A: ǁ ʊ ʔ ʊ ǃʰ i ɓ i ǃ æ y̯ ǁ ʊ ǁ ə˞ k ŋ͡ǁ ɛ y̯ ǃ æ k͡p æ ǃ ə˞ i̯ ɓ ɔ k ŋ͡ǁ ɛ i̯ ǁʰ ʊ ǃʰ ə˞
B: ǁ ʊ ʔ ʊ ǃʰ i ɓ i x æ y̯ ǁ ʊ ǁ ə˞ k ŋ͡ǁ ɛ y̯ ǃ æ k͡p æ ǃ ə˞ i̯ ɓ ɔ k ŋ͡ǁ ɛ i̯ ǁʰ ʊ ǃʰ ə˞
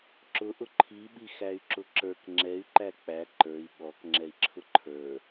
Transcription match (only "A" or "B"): B